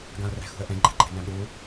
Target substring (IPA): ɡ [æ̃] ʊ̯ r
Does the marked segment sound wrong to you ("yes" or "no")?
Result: yes